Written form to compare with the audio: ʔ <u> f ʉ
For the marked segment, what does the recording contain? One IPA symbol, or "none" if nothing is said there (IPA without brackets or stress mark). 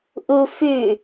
u